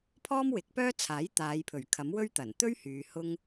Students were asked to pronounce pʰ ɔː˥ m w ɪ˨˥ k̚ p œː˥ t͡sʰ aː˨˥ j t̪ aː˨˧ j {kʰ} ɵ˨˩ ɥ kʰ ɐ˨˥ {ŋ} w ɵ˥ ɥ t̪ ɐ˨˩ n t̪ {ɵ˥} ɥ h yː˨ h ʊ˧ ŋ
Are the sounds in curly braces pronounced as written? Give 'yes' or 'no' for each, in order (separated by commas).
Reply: no, no, yes